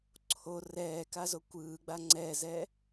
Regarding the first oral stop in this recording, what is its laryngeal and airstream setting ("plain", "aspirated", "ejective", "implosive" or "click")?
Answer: click